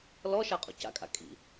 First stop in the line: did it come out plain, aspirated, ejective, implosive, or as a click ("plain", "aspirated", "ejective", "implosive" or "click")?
ejective